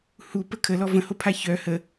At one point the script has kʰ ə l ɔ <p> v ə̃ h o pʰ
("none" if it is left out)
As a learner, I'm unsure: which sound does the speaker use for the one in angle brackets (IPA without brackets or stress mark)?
none